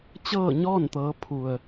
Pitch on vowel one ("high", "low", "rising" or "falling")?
falling